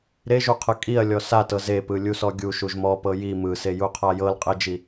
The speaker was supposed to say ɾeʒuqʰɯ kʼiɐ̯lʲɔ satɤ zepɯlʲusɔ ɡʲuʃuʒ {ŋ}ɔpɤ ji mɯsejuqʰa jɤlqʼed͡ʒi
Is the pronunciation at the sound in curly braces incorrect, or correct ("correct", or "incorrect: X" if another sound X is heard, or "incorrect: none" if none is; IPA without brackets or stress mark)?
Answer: incorrect: m